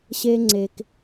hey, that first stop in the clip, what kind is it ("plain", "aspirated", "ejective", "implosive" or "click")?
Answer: click